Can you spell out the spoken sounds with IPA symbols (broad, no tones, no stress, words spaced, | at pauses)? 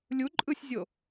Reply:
lʲu ǃʼɯsʲzʲo